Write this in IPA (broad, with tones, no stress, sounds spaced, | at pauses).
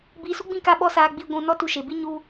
b iː˧ s u˦ ɡ͡b ĩ˦˨ k a˦˨ ɓ ɔ˦ s aː˧ ɡ͡b i˧ ɡʷ ũ˧ n ɔ˦ t u˧ ʃ e˨ b i˦ ɲ u˦